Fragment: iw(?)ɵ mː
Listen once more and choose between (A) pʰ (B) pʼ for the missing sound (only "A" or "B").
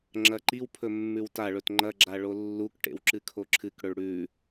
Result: A